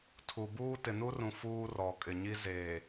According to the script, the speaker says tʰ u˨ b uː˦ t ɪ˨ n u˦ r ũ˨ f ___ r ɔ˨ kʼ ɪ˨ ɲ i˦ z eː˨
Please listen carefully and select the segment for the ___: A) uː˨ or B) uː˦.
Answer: B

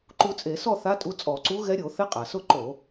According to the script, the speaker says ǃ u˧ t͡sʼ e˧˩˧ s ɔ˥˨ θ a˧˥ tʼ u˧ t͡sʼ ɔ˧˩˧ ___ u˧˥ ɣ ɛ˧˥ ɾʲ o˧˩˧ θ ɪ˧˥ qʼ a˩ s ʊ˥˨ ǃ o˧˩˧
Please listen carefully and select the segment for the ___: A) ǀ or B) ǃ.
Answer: A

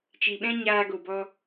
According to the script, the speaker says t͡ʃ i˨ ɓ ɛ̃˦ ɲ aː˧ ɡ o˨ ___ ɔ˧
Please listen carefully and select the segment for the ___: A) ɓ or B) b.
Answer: B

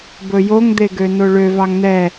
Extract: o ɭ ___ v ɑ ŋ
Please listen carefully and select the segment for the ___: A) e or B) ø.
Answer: B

